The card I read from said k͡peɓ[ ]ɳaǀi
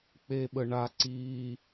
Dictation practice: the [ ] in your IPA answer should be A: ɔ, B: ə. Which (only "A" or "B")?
B